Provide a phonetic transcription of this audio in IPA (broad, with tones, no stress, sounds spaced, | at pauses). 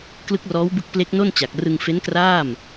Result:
k l ɯ˦˥ k̚ r ɔː˦˥ w b ɯ˦˥ k̚ p l e˦˥ k̚ n o˥˩ n t͡ɕ a˨˩ k̚ r ɯ˧ ŋ f e˦˥ n k r aː˥˩ m